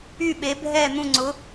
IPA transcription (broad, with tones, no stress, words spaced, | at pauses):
y˥˩ɓe˩˥bʱɛ˥˩n̪ũ˥˩ ŋ͡ǀʊ˩˥